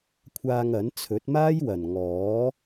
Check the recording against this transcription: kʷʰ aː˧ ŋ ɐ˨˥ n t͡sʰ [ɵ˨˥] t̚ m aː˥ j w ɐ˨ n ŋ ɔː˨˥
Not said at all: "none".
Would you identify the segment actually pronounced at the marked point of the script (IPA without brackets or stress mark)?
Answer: ɵ˨˥